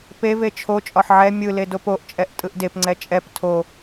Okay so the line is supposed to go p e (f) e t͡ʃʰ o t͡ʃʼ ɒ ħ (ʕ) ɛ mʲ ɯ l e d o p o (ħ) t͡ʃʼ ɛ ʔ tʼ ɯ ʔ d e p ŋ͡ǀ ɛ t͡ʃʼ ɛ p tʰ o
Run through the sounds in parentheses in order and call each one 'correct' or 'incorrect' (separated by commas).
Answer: incorrect, correct, incorrect